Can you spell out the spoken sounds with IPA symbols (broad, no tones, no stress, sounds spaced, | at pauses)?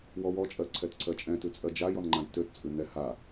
w ɔ w ɔ t͡ʃʼ ɜ ǀʰ ɛ t ǀʰ ɜ t͡ʃʼ ɛ̃ t ʉ t͡sʼ ɜ d͡ʒ a j ɔ n ŋ͡ǃ ã j t ø t t͡sʼ ʉ n ɛ h a